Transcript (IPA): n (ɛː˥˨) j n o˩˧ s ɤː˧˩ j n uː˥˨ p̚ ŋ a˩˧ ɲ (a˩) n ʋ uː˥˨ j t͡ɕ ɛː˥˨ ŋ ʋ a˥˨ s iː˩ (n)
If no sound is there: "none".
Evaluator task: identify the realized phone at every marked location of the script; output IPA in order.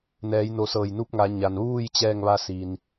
ɛː˩˧, a˩, n

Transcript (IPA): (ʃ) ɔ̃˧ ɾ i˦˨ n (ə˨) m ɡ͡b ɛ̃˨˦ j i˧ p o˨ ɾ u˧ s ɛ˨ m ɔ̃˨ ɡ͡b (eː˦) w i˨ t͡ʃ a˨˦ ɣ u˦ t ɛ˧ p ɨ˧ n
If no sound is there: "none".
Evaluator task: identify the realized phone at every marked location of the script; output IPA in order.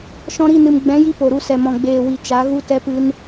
ʃ, ɨ˨, eː˨

